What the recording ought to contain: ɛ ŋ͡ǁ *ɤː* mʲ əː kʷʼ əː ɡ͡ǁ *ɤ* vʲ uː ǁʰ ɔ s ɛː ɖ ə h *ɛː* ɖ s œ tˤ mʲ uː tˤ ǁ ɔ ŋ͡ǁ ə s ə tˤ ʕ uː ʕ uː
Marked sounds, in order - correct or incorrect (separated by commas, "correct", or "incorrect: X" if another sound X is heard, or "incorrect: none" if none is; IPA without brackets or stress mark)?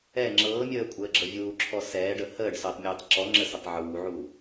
correct, correct, incorrect: əː